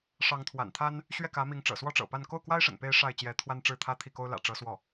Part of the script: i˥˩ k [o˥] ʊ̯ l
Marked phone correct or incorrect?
correct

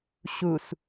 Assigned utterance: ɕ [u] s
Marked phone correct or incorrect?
correct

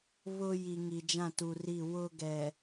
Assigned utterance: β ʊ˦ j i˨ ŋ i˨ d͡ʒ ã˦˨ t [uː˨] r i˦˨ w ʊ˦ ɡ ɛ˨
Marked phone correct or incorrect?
incorrect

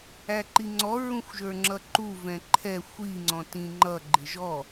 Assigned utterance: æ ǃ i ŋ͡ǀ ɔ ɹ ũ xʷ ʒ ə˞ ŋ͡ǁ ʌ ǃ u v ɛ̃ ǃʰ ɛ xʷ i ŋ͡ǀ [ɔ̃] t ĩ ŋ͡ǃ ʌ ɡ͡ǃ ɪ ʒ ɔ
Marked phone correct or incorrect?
correct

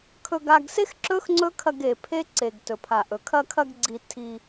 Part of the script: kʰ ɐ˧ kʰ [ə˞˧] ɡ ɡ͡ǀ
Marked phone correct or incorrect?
incorrect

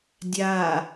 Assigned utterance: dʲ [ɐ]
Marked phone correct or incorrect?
incorrect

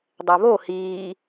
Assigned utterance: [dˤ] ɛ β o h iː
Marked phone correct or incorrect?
correct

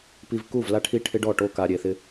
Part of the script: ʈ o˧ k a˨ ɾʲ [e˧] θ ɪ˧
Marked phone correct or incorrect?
incorrect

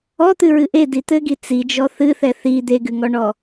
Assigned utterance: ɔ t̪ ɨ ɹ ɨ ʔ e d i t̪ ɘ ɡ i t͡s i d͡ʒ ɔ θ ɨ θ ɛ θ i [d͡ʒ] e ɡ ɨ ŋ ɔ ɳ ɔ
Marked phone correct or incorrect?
incorrect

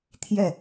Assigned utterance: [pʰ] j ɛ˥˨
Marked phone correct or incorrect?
incorrect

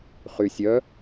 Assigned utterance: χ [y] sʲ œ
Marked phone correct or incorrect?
correct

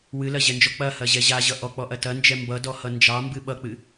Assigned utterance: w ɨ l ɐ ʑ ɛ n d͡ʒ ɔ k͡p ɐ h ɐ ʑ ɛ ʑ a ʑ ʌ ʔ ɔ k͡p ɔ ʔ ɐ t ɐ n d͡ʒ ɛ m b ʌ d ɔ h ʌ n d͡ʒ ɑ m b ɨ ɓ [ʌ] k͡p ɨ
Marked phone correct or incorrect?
correct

